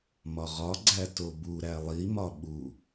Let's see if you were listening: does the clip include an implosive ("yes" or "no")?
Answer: yes